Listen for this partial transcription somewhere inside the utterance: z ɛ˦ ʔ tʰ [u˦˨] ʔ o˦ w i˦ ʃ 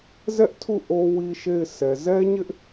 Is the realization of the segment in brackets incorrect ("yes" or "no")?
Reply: no